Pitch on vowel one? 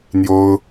high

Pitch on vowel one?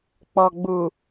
low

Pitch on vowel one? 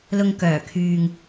low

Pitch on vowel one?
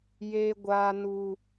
high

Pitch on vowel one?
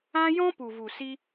high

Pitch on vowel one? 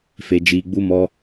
low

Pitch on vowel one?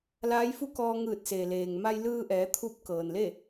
rising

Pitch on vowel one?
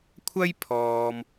high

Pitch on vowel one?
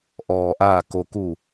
low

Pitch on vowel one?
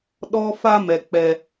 high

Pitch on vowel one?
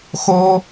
high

